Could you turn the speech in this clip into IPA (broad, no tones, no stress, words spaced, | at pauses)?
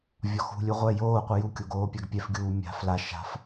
vʲɒxṳlʲu ʁʷɛ joːqʷɯ jukʲo ɡoːpʲaɡpʲɛfɡʲuː mʲa̤ fla ʃa̤f